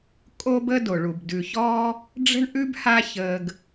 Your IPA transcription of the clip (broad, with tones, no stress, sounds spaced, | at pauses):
kʼ o˥ b ə˥ d o˩ ɭ u˩ b d ʉ˩ ç ɔː˦ | ɖ͡ʐ ə̤˥ ɳ ʔ ʉ˥ b h a˦ ç əː˨ ɡ